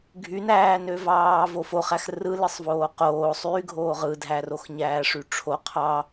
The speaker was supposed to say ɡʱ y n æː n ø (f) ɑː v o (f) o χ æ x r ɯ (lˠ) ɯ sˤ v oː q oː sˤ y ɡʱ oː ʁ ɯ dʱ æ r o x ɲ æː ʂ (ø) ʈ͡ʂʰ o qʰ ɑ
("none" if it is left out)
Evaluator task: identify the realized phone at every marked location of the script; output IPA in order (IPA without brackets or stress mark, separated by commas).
v, f, l, y